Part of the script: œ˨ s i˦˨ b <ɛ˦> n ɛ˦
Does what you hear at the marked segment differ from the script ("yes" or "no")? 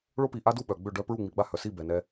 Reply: yes